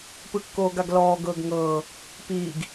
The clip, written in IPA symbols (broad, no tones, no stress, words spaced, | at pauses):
pɯkːoːɡaɡlɔː ɡɤːɡŋɤː | piːɡ